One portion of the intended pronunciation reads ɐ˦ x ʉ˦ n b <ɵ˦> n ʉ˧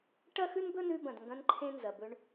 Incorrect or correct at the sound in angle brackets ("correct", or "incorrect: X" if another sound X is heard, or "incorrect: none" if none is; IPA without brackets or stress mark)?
correct